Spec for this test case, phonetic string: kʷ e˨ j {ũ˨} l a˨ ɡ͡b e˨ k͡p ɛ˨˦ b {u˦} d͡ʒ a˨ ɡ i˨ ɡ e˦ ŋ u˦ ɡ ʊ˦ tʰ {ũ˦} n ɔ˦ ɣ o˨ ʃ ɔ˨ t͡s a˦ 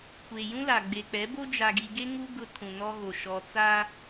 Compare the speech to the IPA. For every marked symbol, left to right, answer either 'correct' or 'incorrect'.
incorrect: ũ˦, incorrect: o˦, incorrect: ũ˨

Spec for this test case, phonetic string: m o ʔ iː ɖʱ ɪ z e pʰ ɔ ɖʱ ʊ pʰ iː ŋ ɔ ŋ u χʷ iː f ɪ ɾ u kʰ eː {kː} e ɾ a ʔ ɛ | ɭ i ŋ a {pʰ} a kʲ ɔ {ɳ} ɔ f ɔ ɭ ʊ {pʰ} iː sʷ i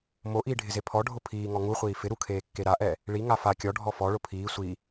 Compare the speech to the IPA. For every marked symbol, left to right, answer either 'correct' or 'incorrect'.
correct, incorrect: f, incorrect: ɖʱ, correct

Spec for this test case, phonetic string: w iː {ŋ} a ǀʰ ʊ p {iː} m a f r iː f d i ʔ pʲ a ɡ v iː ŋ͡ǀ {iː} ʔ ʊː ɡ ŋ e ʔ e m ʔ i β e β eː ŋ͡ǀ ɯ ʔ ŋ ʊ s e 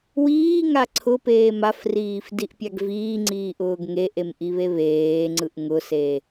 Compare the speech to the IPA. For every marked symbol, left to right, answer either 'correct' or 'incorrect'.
correct, incorrect: eː, correct

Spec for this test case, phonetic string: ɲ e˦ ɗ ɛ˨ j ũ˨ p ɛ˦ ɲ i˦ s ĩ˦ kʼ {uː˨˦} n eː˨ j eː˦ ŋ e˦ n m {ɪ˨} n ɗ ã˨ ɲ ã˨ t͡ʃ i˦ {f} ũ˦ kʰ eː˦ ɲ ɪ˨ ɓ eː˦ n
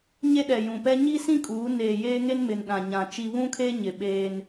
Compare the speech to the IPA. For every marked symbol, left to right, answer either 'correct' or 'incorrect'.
correct, correct, incorrect: β

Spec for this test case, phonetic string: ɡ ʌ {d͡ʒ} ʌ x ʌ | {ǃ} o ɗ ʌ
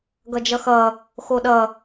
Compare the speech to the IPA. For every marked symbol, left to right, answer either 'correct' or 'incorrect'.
correct, incorrect: x

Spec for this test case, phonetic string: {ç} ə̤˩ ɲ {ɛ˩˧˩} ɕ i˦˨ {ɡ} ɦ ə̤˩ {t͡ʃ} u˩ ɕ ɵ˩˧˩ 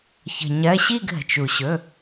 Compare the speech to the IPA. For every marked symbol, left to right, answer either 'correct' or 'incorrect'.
correct, incorrect: ɜ˩˧˩, correct, correct

